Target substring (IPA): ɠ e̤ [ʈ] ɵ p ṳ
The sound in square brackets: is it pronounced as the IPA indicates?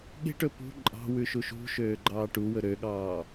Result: yes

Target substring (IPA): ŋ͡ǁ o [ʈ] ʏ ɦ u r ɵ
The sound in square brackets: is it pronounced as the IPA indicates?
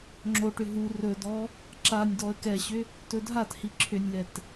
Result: yes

